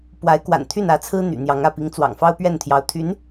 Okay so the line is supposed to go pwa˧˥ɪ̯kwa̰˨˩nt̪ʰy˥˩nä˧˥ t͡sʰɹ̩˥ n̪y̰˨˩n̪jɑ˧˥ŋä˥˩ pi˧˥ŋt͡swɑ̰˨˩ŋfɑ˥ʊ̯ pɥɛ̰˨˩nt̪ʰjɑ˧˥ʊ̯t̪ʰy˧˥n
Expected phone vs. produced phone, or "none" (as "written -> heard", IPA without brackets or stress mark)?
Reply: ɛ̰˨˩ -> ɛ˥˩